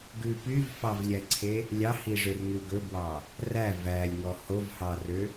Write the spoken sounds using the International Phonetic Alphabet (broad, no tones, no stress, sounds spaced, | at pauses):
ɡ ʉ p y v f ɑ v lʲ æ ǀʰ e | lʲ ɑ h i ʐ ø r ŋ ʉ ɡ ɵ b w ɑ | r æ v æ lʲ ŋ ɔ h o v h ɑ r ø